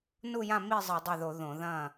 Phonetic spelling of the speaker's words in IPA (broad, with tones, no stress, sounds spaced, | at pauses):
n u˥˨ j ã˥˨ m i˥˨ zˤ ɨ˧˩˧ dˤ a˥˨ ð o˧˩˧ ð õ˧˩˧ ð ɐ̃ː˥˨